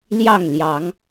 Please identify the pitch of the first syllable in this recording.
falling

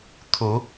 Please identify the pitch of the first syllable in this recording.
rising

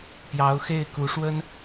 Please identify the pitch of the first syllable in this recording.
rising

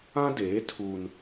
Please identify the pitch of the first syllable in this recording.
high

